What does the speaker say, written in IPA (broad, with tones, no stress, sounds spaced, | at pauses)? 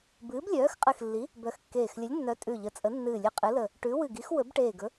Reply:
b ɨː˨˥ b lʲ œː˨˥ x qʼ ɨ˧˩ x lː i˨˥ | b œ˧˩ x kː eː˧˩ x lʲ ə˨˥ lʲ nː œ˨˥ tʼ ʉ˧˩ ʎ ə˨˥ t͡sʼ ə˨˥ nː ɨː˧˩ lʲ ɨ˧˩ qʼ ɨ˨˥ l ə˧˩ | ʈ ʉ˨˥ w ɨ˧˩ ɡ i˨˥ x w ɵ˨˥ b ʈ eː˧˩ ɡ ɵ˨˥